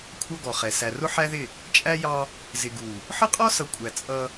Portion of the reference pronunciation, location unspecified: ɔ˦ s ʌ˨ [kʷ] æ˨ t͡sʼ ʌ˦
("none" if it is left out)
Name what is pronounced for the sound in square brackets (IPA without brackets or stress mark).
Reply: kʷʼ